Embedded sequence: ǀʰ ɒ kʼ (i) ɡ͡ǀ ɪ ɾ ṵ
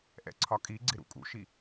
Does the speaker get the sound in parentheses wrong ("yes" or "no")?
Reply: no